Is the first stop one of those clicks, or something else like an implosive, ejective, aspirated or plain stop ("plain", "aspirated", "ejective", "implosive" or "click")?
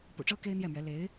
plain